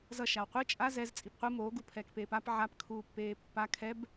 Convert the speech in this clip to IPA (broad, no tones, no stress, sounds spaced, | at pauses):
z ʌ ʃ a w qʷ ɯ t͡ʃʼ a z ɛ z t͡sʼ i p qʷ ɯ m o ɡ u pʰ ɛː k p eː p a p ʕ a p kʰ uː pː eː pː a kʰ ɛ b